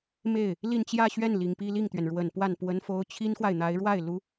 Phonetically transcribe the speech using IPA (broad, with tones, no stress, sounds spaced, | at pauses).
m e˥˩ ɪ̯ | l i˥˧ n t͡ɕ j ä˥˧ ɕ ɥ ɛ˥˩ n l i˨˩ ŋ p i˥˧ l i˥˩ ŋ t̪ ɥ ɛ˩ n ɻ w ə˨˩ n p w a˥˩ n p w ə˥ n f o˥ ʊ̯ t͡ɕʰ i˥ n x w a˨ ɪ̯ n̪ a˧˥ ɪ̯ ɻ w a˥˩ ɪ̯ l u˥